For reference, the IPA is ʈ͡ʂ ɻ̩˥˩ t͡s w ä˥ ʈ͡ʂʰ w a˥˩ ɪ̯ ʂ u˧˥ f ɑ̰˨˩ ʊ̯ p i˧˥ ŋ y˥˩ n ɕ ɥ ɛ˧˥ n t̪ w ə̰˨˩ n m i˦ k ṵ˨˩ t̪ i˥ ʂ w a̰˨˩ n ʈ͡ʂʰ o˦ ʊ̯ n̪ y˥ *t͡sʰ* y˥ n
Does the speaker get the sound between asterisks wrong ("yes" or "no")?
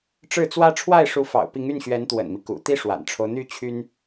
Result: yes